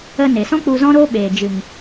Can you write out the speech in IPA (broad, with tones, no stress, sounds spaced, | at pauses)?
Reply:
ə˧ n e˨ s ɔ̃˦ k͡p u˧ z ɔ̃˦ ɾ oː˦ ɓ eː˨ d͡ʒ ɨ˨ ŋ